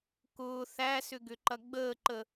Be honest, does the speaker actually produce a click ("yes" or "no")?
yes